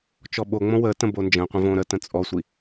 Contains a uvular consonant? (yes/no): yes